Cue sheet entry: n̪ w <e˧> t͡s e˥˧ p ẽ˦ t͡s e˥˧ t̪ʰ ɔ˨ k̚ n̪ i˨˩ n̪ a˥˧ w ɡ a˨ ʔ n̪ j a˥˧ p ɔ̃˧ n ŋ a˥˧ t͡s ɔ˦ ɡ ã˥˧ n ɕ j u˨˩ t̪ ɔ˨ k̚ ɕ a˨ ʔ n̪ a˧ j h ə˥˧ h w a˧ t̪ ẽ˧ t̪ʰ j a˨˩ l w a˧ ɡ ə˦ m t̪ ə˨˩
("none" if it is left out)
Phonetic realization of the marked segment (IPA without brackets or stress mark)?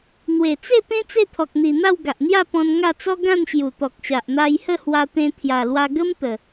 e˨˩